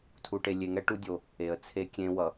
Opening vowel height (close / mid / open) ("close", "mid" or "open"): close